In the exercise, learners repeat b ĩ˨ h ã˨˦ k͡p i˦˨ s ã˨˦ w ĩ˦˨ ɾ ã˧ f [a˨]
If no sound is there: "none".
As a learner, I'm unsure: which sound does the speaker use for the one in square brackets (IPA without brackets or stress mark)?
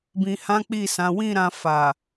a˨